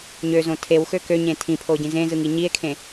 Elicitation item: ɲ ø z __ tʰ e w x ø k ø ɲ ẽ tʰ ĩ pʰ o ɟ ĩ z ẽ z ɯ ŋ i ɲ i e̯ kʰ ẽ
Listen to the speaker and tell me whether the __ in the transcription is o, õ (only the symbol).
õ